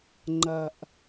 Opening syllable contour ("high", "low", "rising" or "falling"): low